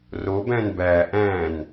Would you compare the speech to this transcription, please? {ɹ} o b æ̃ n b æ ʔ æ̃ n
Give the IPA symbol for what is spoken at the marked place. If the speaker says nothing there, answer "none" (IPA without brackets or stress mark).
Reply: r